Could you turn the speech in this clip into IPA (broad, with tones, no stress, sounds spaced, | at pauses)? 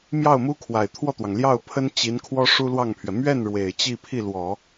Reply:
m j ɑ˥˩ ʊ̯ m u˥ kʰ w a˨˩ ɪ̯ t̪ʰ w ɔ˥˩ t̪ w ɑ˩ ŋ l j ɑ˥˩ ʊ̯ pʰ ə˥ n t͡ɕ i˧˥ n kʰ w ɔ˥ ʂ u˥ l w ɑ˥˩ ŋ pʰ ɥ ɛ˩ m ɥ ɛ˥˩ n ɻ w e˨˩ ɪ̯ t͡ɕ i˥˧ pʰ i˥˩ l w ɔ˨˩˦